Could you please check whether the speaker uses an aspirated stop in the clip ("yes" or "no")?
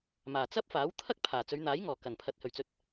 yes